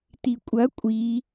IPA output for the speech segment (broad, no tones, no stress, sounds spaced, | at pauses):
t i kʷʼ ɐ kʷʼ i